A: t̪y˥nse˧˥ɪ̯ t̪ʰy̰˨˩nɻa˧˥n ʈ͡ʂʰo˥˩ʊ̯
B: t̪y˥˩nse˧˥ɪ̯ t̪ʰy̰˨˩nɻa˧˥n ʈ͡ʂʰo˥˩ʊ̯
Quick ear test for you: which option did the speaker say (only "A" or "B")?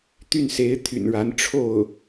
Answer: B